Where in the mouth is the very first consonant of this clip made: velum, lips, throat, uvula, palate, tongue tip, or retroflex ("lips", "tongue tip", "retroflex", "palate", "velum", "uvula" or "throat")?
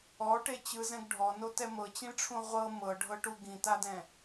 retroflex